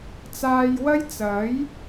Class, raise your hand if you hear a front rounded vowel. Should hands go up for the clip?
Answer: no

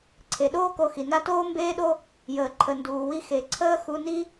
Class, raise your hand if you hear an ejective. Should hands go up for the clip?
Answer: no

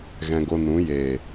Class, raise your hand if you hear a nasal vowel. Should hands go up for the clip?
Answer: yes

